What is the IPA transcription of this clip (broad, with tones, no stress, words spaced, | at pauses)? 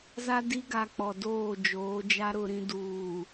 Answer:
za˦di˦ɡa˨ k͡pɔ˨doː˦˨d͡ʒoː˨˦d͡ʒa˦ ɾʊ˨ɾĩ˨ duː˨